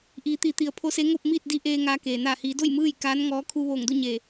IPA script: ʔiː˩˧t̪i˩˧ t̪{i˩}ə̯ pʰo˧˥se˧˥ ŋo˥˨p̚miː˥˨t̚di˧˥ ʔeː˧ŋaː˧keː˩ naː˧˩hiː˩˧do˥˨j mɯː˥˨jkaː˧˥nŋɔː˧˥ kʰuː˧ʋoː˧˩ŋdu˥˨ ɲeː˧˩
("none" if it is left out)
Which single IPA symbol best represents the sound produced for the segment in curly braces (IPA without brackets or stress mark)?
i˩